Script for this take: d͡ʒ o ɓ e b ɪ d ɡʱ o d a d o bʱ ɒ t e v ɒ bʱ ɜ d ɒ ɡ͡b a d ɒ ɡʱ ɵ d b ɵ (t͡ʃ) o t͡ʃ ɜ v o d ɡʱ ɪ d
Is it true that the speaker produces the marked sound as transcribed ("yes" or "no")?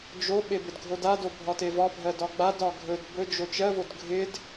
no